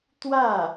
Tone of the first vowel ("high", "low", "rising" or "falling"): falling